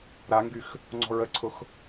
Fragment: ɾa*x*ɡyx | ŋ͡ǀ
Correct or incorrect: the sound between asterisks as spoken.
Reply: incorrect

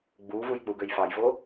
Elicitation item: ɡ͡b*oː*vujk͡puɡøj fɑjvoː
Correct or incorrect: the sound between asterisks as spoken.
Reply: incorrect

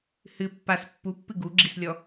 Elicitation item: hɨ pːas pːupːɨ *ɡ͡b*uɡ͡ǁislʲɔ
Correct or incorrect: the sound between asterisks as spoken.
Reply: incorrect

